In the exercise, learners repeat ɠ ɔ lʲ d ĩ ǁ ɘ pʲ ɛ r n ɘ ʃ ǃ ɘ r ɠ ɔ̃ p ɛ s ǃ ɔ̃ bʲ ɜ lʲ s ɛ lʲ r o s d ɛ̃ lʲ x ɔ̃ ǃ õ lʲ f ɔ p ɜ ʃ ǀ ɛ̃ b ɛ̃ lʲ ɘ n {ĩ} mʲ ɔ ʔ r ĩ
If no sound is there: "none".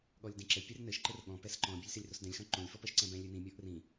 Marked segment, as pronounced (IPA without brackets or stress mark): ĩ